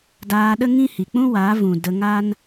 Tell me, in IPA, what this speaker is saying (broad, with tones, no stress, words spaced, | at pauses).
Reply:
daː˧ɗə˦ŋĩ˦hi˨ k͡pũ˦waː˨˦vũ˨ də˧ŋa˦n